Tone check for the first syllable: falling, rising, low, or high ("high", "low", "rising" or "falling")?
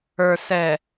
low